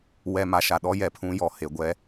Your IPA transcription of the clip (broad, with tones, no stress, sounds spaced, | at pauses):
w ɛ˨ m a˨ ʃ a˨ ɗ ɔ˦ j ɛ˨ pʰ ũ˦ j ɔ˨ h e˨ ɡʷ ɛ˦